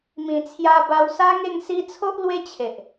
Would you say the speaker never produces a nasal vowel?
no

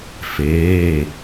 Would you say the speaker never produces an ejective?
yes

